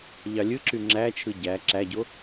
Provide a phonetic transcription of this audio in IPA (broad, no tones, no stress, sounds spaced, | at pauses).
ʎ ɑ lʲ ɯ ǁ y ŋ͡ǁ æ t͡ʃʰ ɯ ɟ æ ǁ æ ɟ o